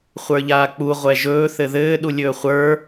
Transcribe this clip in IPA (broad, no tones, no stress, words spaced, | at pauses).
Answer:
χʷə˞ʎaːk͡pu ʁʷɛʒɵː θɘðɘː ɗulʲɵːχʷə˞